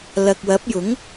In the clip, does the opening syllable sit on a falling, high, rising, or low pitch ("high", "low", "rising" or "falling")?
low